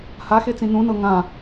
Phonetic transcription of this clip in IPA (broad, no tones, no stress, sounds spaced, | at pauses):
h a x e t͡s ĩ n ũ n ɤ ŋ ã